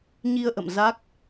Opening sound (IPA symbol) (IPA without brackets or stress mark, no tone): ɲ